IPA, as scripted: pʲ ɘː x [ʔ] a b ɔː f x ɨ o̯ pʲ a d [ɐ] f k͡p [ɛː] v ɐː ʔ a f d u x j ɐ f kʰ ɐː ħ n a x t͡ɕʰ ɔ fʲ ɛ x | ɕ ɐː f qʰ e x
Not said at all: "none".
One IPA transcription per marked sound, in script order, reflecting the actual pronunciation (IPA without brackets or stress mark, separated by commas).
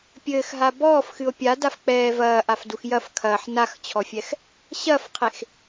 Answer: ɦ, a, ɛː